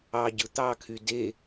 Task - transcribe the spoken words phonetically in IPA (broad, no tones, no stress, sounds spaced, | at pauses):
ɑ ɟ ɯ t̪ ɑ kʰ y d e